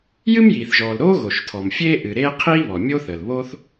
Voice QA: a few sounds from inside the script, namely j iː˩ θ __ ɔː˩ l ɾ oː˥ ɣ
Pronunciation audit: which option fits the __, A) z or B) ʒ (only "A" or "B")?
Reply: B